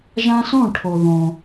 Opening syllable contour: high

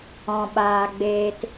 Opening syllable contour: low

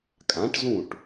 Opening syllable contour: rising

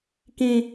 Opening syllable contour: high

